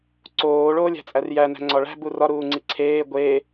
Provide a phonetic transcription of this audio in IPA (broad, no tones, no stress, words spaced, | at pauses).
ǀoː ɭoːlʲæ̤t͡sʼærjæ næ̤ŋ͡ǀɒɭæ̤ burɒ ɾuːŋ͡ǀiǀʰeː ɡʷe